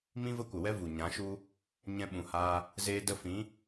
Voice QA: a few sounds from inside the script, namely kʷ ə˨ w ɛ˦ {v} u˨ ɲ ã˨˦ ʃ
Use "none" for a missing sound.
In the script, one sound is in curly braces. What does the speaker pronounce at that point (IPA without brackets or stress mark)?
v